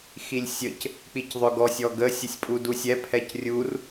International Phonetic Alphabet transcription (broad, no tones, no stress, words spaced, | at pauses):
xilʲsʲəc | k͡picðˤʏɡɔsʲ ɔɡə sʲəsʲpʼudusʲɛ pʰɛcrʲur